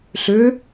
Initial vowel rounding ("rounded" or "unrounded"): rounded